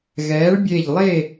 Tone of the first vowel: rising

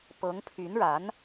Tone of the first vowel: rising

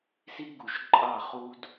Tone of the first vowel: high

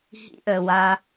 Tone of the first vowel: high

